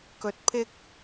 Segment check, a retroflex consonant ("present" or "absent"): absent